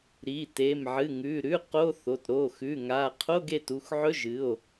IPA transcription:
ɾ i˩˧˩ t e˩˧˩ m ʕ ɨ˩˧˩ ŋ ʉ˩˧˩ ɾ ʉ˧˥˧ q o˧˥˧ θ o˩˧˩ t ɾ o˩˧˩ x ʉ˩˧˩ ŋ a˩˧˩ qʰ o˧˥˧ ɡ e˩˧˩ t u˩˧˩ x ʕ ɵ˧˥˧ ʒ ɨ˩˧˩ o̯

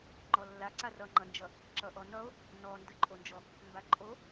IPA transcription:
ŋ͡ǃ ɔ lː a ǀ a r ʌ ŋ͡ǃ ʌ n d͡ʒ ʌ | ǁ ʌ ʔ ɔ n ʌ o̯ | n ɔ n d ə ǃʼ o n d͡ʒ ɔ | m b a ǃʼ o

